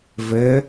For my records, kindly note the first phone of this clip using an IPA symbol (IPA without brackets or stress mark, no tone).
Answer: v